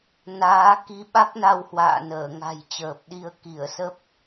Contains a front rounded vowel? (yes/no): no